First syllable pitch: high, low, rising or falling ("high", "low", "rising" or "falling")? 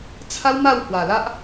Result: high